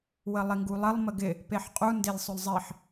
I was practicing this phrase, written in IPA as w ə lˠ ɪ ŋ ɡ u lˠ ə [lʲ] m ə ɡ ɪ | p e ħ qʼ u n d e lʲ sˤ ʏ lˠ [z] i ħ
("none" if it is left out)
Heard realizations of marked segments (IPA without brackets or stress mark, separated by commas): lˠ, zˤ